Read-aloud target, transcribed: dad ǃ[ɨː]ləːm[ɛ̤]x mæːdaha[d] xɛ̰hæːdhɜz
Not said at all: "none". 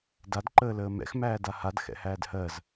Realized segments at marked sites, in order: əː, ɛ̰, d

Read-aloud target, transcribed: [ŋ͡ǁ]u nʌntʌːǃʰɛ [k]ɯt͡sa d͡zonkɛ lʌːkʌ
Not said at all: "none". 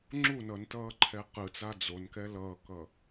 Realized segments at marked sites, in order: ŋ͡ǁ, q

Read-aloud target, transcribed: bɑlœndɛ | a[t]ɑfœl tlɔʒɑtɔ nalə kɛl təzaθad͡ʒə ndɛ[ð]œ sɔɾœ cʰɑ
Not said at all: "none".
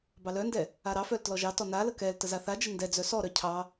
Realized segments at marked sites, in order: ɾ, d͡z

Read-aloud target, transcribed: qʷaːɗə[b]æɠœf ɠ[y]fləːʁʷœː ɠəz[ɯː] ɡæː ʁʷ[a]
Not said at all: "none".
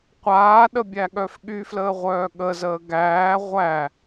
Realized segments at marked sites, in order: bʲ, y, əː, æ

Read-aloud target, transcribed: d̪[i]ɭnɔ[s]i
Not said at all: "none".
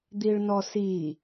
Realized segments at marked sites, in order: i, s

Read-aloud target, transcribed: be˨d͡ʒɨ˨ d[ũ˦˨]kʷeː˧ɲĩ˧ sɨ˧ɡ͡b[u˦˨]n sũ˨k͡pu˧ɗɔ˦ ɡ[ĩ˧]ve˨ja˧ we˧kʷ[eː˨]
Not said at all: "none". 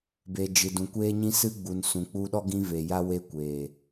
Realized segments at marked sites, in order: ũ˨, u˨, ĩ˧, eː˨

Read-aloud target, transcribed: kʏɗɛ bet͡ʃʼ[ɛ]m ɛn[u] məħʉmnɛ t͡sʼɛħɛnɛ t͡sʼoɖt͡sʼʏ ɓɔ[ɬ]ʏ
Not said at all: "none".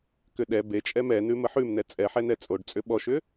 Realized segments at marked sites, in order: ɛ, ʉ, ʃ

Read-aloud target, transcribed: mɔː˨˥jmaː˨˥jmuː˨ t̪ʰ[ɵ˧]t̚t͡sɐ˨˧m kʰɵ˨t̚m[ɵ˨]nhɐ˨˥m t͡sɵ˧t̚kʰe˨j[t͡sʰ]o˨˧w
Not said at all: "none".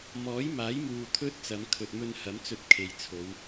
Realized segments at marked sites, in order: ɵ˥, ɵ˧, t͡sʰ

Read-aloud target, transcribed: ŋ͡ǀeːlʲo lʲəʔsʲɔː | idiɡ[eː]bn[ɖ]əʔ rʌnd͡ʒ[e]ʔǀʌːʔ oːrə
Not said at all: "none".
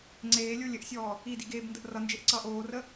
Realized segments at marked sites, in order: eː, d, e

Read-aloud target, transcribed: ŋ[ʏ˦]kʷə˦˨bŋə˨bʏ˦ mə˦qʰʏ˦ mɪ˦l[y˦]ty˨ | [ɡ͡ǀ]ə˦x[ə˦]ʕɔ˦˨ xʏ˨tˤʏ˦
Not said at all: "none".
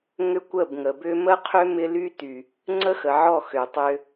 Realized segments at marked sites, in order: ʏ˦, y˦, ŋ͡ǀ, ə˨

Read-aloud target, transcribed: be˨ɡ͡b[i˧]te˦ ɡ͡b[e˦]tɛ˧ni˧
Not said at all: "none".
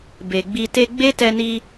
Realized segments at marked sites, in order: i˧, e˦

